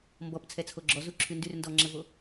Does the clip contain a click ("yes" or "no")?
yes